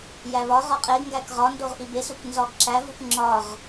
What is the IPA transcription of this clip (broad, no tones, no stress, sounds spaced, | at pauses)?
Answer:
j æ β ɒ ʁ ɒ qʼ e ɡ ŋ ɡ æ k ʁ ɒ n d o ʁ ʔ i b e s u k n z ɒ ɡ ǁ æ v u k ŋ͡ǁ ɒ ʁ